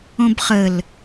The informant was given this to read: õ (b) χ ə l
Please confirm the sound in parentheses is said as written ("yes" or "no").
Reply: yes